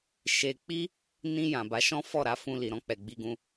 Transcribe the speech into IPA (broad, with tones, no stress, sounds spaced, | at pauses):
ʃ e˧ k͡p i˦ | n ĩ˧ j ã˨ b a˨˦ ʃ ɔ̃˦ f ɔ˦˨ ɾ a˧ f ũ˧ l i˨ ɾ ɔ̃˧ k͡p ɛ˨ ɡ͡b i˧ ɡ ũ˧